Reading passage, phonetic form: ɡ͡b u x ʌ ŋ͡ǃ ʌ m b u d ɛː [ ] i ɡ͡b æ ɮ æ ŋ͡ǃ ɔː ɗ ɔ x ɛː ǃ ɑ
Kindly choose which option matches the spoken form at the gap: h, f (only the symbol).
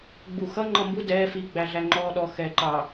f